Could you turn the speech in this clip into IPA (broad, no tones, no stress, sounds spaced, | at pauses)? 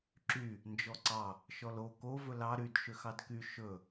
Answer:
ǁ y | n d͡ʒ ɔ ǀ ɑ | ʃ ɔ l o k o v ɵ l ɑ ɾ y d ʃ ø x ɑ d k y ʃ ɵ